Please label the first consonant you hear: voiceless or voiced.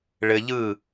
voiced